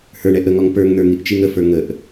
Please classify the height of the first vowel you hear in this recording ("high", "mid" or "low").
mid